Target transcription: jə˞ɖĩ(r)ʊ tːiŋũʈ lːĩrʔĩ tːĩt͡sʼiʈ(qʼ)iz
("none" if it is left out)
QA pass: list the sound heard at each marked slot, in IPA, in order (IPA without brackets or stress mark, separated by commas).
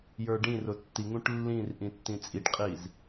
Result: r, qʼ